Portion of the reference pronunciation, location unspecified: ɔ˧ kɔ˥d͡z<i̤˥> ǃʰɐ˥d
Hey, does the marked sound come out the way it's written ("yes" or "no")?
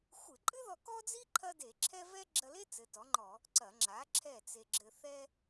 no